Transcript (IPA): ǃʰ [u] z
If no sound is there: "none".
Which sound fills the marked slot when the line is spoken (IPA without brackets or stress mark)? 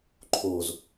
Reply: o